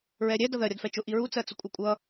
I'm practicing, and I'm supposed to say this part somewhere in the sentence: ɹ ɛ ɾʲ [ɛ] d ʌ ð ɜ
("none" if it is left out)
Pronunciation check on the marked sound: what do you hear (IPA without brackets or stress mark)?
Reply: ɛ